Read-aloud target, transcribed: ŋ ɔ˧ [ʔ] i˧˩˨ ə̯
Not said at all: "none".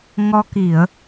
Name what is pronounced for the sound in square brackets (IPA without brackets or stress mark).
k